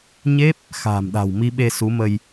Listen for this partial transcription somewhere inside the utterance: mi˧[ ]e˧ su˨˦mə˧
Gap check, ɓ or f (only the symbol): ɓ